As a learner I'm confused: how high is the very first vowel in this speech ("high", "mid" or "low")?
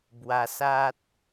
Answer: low